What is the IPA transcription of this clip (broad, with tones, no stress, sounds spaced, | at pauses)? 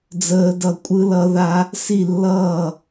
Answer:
d͡z əː˦˥ d ʌ˥˨ kʷʼ ɯ˦˥ l ʌ˦˥ ð a˦˥ | s i˥˨ lː ʌː˥˨